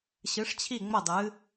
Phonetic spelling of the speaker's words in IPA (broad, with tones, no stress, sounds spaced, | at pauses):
ɕ ɨ˨˦ ʂ t͡ɕʰ i˦˨ ŋ͡m ə˦˨ dˤ ɨ˨˦